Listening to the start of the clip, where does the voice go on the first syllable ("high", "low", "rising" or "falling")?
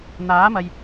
rising